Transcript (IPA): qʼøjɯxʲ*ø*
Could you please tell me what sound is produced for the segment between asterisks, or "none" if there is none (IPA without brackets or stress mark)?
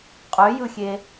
e